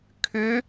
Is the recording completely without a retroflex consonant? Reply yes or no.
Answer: yes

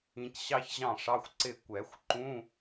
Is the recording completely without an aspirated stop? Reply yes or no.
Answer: yes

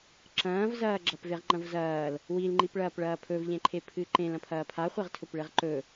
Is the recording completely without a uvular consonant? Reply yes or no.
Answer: no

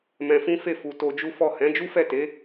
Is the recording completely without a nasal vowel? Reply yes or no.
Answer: no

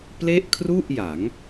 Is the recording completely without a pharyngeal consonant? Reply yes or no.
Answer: yes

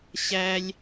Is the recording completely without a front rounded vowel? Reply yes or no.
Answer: yes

